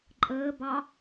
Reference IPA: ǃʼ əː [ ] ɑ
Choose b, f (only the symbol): b